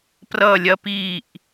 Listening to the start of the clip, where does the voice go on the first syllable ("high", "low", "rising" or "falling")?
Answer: falling